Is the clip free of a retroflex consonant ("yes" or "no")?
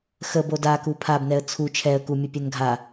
yes